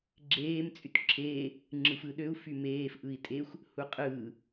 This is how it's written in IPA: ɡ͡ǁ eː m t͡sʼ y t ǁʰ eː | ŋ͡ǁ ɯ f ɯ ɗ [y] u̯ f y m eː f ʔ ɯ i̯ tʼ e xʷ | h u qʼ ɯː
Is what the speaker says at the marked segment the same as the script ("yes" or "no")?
no